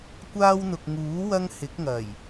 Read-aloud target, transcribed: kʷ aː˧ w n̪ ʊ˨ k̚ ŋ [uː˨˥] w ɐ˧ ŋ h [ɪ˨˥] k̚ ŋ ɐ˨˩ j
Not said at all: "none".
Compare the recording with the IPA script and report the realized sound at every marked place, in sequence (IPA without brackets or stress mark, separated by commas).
uː˨˥, ɪ˨˥